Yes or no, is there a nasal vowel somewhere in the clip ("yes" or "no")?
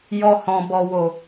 yes